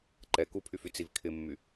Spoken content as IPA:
ǃ ɛ k u pʰ y f y t͡s i v kʰ ɪ mː y

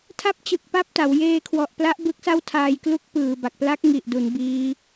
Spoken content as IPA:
tʰ a˦˥ p̚ t͡ɕ ɯ˨˩ k̚ p a˥˩ p̚ t a˩˦ w j eː˧ kʰ w ɔ˨˩ ʔ p l a˦˥ ʔ b ɯ˦˥ k̚ s a˥˩ w tʰ aː˧ j k l u˥˩ k̚ p ɯː˨˩ b a˨˩ k̚ p l a˦˥ k̚ ŋ i˨˩ ʔ d u˩˦ n b iː˦˥

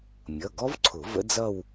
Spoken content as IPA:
mʲ ʌ˩˧˩ ɡ ɔ˦˥ v ǀʰ ʊ˨˩˦ v ə̰˦˥ d͡z ʌ˥˧ w

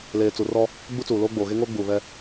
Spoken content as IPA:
l eː˨ t͡s u˨ r ɔ˦ | ɡ͡b u˦ t͡s uː˨ l oː˦ ɡ͡b oː˨ ɣ e˦ ŋ oː˦ ɡ͡b uː˨ β ɛ˦

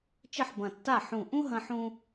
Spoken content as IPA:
t͡ʃ ɘ˥˩ ħ b ɐ̃˧˩ tː a˥˩ ħ ũ˧˩ ʔ ũ˥ ɦ ɐ̃˥ ħ ũ˥

